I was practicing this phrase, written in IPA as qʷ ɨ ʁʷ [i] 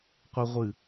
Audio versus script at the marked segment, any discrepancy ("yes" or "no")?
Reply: yes